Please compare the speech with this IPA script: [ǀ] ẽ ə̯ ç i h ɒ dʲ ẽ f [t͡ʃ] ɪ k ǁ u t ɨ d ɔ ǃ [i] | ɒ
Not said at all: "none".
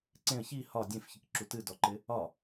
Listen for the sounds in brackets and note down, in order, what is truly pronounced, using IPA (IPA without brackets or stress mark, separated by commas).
ǀ, ç, ɪ